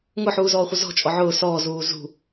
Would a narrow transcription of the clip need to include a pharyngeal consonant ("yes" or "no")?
yes